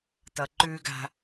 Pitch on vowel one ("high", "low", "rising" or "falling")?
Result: low